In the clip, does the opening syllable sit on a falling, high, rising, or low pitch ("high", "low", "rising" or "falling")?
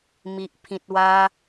low